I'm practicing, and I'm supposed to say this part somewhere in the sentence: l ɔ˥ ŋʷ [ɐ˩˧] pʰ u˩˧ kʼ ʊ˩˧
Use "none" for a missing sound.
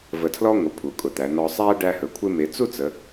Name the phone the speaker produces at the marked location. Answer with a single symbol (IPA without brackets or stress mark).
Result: ə˩˧